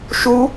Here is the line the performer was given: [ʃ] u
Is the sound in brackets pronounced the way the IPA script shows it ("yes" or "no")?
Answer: yes